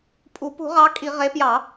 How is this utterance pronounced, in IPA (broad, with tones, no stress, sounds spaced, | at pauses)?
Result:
pʼ u˧˩˧ p ṳ˧˩˧ ʁ ɑ˨˦ kʼ i˧˩˧ ʁ e˨˦ p j ɑ˧˩˧